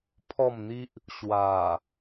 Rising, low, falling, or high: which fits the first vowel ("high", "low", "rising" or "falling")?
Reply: falling